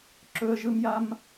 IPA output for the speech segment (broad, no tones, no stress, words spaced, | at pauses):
ǁɵə̯ʒɯmjam